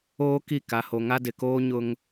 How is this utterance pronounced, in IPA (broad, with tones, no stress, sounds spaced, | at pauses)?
oː˦ k i˦˨ k a˦ h o˦ ŋ a˦ d ɪ˨ k oː˦ ɲ ʊ˦ ŋ